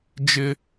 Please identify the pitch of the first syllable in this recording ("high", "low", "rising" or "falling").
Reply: high